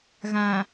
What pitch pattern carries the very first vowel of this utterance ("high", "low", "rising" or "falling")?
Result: low